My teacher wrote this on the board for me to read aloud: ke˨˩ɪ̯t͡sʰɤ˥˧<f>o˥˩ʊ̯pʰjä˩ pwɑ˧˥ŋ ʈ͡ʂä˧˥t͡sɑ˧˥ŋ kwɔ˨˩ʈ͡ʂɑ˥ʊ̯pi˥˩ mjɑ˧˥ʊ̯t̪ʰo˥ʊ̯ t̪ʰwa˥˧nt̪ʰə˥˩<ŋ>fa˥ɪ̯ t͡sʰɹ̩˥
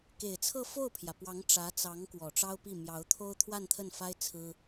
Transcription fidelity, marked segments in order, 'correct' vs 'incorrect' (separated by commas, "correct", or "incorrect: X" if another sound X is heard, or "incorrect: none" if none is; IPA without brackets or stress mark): correct, incorrect: n